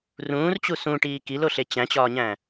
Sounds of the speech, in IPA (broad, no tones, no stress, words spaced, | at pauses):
rũːrt͡ɕu sũʈiː kiloɬe t͡ɕæ̃t͡ɕɒːɲæ̃